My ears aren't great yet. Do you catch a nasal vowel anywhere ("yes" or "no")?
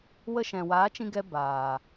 yes